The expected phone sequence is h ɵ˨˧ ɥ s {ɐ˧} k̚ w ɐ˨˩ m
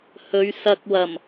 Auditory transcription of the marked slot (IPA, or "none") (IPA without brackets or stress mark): ɐ˧